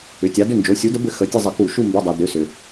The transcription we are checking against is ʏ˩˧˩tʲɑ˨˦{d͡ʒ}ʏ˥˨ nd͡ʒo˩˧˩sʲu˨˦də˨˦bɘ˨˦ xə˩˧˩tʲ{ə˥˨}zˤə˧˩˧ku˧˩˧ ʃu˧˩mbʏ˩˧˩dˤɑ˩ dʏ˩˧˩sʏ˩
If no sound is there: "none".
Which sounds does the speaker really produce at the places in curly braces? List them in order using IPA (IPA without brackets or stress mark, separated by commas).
d, ə˥˨